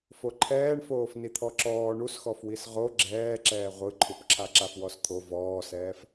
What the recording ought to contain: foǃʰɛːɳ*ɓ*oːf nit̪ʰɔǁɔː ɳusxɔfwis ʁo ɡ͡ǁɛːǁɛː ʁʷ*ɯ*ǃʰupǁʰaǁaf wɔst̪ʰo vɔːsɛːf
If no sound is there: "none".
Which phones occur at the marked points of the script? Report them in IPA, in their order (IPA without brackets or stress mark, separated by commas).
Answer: f, ɯ